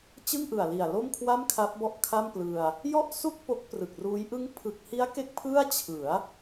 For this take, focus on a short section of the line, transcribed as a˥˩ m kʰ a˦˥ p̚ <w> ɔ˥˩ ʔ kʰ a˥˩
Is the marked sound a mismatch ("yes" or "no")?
yes